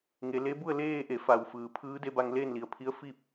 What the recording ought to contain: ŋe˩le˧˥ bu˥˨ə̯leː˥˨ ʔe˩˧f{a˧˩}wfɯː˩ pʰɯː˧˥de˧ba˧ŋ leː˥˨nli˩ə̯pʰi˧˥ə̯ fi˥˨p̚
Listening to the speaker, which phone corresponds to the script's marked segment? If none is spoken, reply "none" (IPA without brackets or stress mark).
a˩